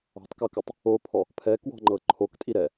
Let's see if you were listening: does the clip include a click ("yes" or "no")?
yes